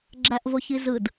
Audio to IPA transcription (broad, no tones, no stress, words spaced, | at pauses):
ɡ͡ǁæʔvoçizɯd